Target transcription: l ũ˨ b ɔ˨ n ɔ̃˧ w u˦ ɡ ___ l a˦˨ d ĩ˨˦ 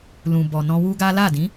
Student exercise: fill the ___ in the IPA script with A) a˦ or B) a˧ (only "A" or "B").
A